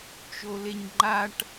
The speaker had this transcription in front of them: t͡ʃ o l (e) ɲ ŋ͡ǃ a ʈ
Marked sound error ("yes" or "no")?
no